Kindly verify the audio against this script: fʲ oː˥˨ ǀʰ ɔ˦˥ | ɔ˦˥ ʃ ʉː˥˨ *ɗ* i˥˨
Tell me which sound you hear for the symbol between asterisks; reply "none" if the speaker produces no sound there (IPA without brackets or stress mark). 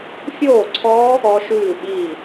ɓ